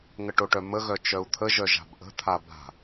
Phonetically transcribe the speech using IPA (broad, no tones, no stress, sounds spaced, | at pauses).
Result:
ŋ ə ʈ o ʈ œ m ə ɣ œ t͡ʃ œ u̯ t̪ʰ ə ʒ œ ʒ a̤ b ʔ ə̤ t̪ʰ a b a̤